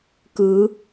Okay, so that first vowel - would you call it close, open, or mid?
close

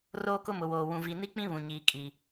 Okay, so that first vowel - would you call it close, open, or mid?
mid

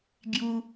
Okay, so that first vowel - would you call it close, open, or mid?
close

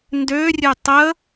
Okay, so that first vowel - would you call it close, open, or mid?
mid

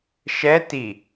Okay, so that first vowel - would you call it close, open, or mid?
mid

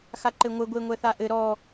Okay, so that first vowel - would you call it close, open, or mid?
open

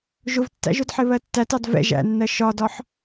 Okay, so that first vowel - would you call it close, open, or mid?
close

